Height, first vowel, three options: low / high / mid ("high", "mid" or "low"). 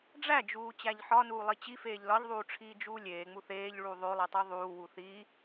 low